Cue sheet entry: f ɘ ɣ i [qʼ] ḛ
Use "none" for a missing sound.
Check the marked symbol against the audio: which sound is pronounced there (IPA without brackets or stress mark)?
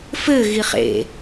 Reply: χ